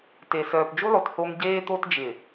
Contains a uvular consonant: no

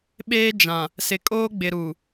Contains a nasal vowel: yes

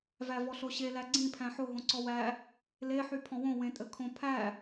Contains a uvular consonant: no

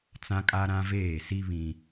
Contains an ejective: yes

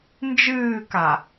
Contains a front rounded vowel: no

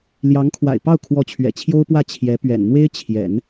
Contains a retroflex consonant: no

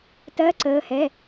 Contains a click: yes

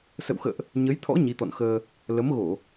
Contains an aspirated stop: yes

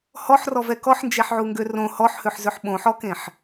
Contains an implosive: yes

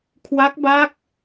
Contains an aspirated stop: yes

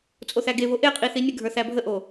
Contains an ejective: yes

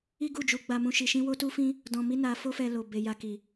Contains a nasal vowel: yes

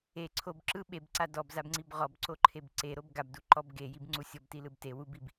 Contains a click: yes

